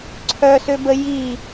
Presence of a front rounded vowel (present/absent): present